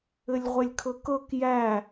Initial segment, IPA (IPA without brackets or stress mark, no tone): ɘ